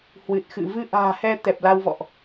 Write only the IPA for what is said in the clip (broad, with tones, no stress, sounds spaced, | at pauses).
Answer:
h w ɨ˨˩ t̚ x ɨ̰˧˨ v ɨ˧ ʔ a̤ː˨˩ h ɛ˧ t̪ ɛ˨˩ p̚ l a˧ w v ɔ̰˧˨ ʔ